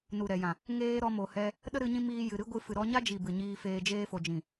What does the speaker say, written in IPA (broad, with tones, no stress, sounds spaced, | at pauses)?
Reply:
n u˨ ɾ ɛ˨ j ã˨ | ŋ eː˦ ɾ ɔ˧ m o˨ h ɛ˧ | ɗ ə˦ ɾ ɨ˧ ɲ ĩ˧ m iː˧ j ɨ˨ ɾ ɨ˦ ɡʷ ɨ˧ f ɨ˨ ɾ ɔ˧ ɲ a˦ d͡ʒ i˨ b ɨ˨ ɲ iː˧ f eː˧ d͡ʒ eː˧ f o˨ d͡ʒ ĩ˨